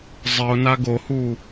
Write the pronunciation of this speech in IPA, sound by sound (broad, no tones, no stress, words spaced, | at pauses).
zˤɪʊ̯na ɡohu